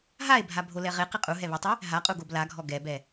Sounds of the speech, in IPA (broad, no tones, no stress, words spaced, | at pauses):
ɦae̯bʱa bʱolɛʁe qiqʼu ɦɛβɛtˤɪ | ɦaqʼuɡob laɡʱɔ ɡɛbɛ